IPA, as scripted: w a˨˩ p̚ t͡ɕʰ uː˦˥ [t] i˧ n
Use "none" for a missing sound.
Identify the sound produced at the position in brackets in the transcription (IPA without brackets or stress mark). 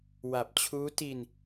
t